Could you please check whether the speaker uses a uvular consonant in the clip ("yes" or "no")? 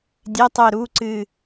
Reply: no